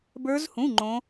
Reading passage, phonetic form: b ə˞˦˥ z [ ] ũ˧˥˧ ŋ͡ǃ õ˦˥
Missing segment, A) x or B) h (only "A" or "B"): B